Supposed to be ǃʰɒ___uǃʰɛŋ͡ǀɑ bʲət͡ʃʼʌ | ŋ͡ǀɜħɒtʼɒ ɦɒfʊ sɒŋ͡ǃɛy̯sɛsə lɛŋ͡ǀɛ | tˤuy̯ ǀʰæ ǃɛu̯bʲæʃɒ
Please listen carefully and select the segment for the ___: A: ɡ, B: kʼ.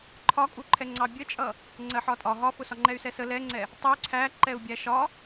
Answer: B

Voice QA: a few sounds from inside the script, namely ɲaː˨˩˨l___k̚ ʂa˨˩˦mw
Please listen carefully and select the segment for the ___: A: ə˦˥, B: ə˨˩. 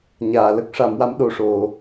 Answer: A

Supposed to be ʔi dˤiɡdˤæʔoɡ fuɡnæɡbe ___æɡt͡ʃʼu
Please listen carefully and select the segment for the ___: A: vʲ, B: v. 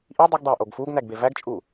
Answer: B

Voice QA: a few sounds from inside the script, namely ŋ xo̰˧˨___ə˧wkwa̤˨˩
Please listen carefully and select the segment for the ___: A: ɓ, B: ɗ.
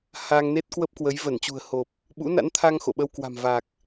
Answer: A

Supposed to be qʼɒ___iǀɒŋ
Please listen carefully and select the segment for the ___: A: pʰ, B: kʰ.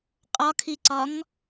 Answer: B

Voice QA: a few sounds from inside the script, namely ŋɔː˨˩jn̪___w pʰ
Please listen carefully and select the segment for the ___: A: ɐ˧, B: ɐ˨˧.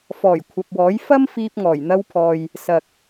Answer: A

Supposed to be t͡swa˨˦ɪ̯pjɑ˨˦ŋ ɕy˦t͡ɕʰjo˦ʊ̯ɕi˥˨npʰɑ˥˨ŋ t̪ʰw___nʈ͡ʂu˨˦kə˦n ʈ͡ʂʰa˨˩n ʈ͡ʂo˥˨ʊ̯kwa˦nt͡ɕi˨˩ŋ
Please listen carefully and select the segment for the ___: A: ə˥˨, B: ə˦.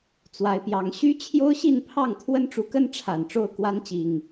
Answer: B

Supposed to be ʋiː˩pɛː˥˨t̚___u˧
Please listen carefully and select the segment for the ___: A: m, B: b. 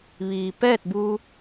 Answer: B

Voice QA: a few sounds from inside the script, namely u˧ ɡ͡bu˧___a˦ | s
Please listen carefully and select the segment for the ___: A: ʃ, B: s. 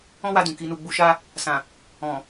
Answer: A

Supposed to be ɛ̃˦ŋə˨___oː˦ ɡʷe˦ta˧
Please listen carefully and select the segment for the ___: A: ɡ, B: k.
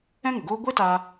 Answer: A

